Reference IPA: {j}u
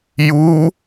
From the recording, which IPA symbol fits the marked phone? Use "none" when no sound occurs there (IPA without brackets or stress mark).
j